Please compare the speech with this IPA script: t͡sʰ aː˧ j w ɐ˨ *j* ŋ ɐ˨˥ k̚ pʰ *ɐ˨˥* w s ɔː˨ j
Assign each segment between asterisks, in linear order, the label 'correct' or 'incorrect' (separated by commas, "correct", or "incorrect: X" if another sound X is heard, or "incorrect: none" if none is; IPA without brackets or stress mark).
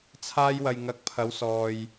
correct, incorrect: ɐ˨˧